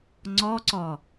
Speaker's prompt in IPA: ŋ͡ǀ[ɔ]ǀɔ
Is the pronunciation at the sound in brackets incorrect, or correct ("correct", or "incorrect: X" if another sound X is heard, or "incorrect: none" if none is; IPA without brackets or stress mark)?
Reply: correct